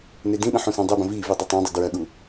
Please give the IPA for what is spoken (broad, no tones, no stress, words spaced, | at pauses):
nedĩɗə̃ ħũsãdˤebə̃ vivi dˤitˤãdˤi dɹɐɠu